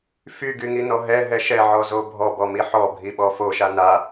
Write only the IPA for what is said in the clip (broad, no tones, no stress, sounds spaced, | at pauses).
f y ɡ y ŋ i n ɔ ɦ ɛ ɦ ɛ ʃ ɛ ʕ ɔ z o bʱ ɔ b ɔ m i ħ ɔ bʱ i ɓ ɔ f o ʃ a n a